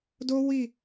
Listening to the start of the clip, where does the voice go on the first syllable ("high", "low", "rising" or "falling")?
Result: high